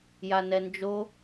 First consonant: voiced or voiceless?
voiced